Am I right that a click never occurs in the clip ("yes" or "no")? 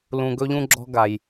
no